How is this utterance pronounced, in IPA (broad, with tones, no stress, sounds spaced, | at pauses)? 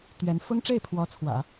t̪ ɥ ɛ˧˥ n f ʊ˥ ŋ ʈ͡ʂ e˥˩ ɪ̯ pʰ w ɔ˧˥ t͡sʰ w ä̰˨˩˦